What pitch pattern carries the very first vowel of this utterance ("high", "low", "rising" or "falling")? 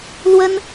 high